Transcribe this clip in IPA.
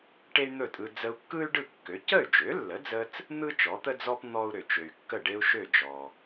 ʈ e˥ y̯ n̪ ɵ˥˩ tʼ ɯ˧ d͡z ə˧ u̯ kː ɯ˥ y̯ ɖ ɯ˥˩ kː ø˩˥ c ə˥˩ y̯ d͡ʒ ø˩˥ lː ə˩˥ d͡z ə˧ t͡s | n̪ ɯ˥ t͡ʃ ɔ˩˥ t̪ ə˥ d͡z ɔ˥ p n̪ ɔ˥ u̯ ɾ ø˩ t͡ʃ ø˩ y̯ kː ə˥˩ ɖ e˥ u̯ ʃ ø˥˩ d͡ʒ ɔ˩

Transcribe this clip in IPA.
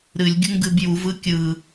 ɾ ɨ lʲ ɡʲ u ŋ ɡ ɨ b j u v ɯ kʲ ɯ

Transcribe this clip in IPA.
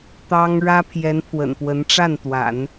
t̪ ɑ˥ ŋ ɻ ä˥ pʰ j ɛ˧˥ n pʰ w ə̰˨˩ n p w ə˧˥ n ʈ͡ʂ a˥˩ n t̪ w a̰˨˩˦ n

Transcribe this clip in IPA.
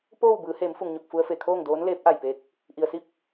p oː˥˨ w b ɯː˩˧ h eː˩˧ m f u˩ ŋ ɲ o˧˩ k̚ f u˧ ə̯ f e˩ kʰ oː˥˨ ŋ d oː˧˥ n l eː˧˥ p̚ ʔ a˧˩ j p e˧˥ k̚ | ʔ i˩ ə̯ s i˥˨ p̚

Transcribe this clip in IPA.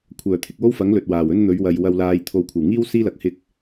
kʷʰ œː˨˩ t̪ʰ ɪ˨ k̚ w o˥ w f ɐ˨˥ ŋ l ɵ˨ t̚ w aː˨˩ w ɵ˥ n n̪ ɵ˨˧ ɥ w ɐ˨ j w ɐ˨ w l aː˨ j t̪ʰ o˨ w kʷʰ ɐ˨˩ w ŋ iː˥ w s iː˥ l ɐ˨˥ k̚ h ɪ˧ k̚

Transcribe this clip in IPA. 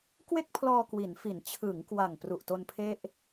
k w e˥˩ k̚ pʰ l ɔː˧ k w i˩˦ n f i˩˦ n t͡ɕʰ ɯ˩˦ ŋ k w a˨˩ ŋ p r u˨˩ ʔ t o˧ n pʰ e˥˩ ʔ

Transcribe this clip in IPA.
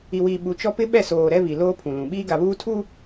i˨ w iː˨ ɓ u˨ t͡ʃ ɔ˦ p ɪ˦ ɓ ɛ˦˨ s oː˨ ɾ ɛ˦ β i˨ l oː˦ pʰ ũ˨ l ũ˨ ɓ iː˦ ɡ a˨ β uː˦ tʰ u˦

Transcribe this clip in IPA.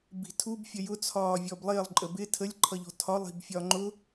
b i̤ tʰ u b fʲ ə j ʊ t͡sʰ ɒː vʲ ɔ b lˠ ɪː lˠ ǃʼ ə b ɪ tʰ ə lʲ ǃʰ ʌ ʎ ɔ̤ tʰ ɒ lˠ i̤ b fʲ ɒ ŋ͡ǃ ʊ

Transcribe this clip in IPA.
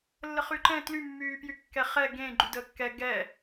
lː ə χ y ǃ ɛ̃ t l y mː yː p j y kː ɛ χ ɛ ɡ ẽ ɡ͡ǃ y d əː kː ɛ ɡ ɛ

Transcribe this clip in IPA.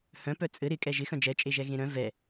h œ̃ p œ t͡sʼ ɘ ɾ ɪ kʼ ɛ ʒ ɪ x œ̃ d͡ʒ ɛ t͡ʃʼ e ʒ ɛ ɣ ẽ ɾ œ̃ v ɛ

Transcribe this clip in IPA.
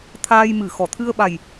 t̪ʰ aː˧ j m ɨ˨˩˨ x ɔ˨˩˨ t̪ʰ ɨ˧ ə̯ ɓ a˨˩ j

